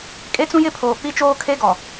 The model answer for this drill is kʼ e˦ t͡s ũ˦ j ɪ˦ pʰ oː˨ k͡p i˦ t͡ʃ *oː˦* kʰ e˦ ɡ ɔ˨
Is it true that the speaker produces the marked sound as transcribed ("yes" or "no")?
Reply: yes